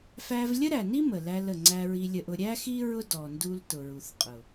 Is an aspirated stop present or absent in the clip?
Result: absent